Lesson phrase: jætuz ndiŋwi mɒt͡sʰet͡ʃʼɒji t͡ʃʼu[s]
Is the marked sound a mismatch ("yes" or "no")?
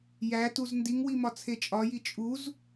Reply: yes